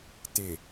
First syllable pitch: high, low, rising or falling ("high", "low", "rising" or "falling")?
low